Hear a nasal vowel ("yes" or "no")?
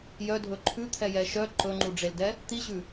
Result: no